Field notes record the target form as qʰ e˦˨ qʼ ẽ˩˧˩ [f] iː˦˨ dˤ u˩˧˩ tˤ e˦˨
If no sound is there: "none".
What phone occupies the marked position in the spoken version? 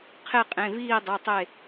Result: v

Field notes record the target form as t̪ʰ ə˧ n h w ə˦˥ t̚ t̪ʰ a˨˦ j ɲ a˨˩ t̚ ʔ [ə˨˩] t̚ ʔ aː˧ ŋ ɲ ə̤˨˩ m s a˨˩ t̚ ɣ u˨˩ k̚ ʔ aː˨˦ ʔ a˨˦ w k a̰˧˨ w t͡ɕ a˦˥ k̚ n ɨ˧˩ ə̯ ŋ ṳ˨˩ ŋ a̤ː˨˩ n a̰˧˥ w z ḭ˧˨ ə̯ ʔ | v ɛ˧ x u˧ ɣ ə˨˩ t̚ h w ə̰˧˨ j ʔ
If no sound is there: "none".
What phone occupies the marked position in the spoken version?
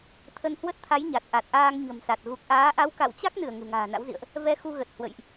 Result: a˨˩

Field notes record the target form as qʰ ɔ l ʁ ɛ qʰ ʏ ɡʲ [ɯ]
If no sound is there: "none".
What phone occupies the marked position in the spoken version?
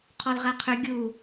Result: u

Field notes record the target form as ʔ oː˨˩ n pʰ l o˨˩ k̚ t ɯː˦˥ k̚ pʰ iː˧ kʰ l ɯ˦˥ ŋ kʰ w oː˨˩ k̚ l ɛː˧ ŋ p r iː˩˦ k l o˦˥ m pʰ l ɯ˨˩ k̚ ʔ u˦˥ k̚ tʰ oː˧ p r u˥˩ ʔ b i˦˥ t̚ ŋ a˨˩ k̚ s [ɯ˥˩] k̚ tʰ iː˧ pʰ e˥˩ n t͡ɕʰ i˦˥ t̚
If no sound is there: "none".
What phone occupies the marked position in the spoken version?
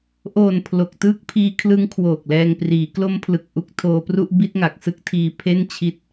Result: ɯ˥˩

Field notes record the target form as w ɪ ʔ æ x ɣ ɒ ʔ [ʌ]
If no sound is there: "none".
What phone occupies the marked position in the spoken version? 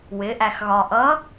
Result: ʌ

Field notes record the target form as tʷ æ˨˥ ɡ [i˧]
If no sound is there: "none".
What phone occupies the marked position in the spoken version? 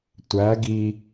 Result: i˧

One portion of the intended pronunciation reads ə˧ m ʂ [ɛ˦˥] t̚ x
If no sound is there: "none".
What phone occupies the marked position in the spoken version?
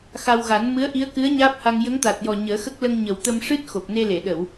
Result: ɨ˦˥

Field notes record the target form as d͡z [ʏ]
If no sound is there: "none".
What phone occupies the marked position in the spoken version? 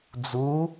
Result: u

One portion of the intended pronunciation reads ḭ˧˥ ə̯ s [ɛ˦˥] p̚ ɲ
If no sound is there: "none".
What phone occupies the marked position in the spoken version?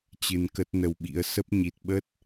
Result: ə˦˥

